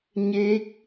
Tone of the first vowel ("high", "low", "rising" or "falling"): rising